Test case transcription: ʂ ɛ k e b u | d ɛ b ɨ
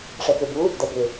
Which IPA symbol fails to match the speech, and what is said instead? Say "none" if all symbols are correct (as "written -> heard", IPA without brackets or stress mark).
ɨ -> ʏ